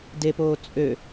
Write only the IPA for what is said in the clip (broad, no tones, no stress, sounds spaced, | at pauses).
d e p oː t͡sʼ ø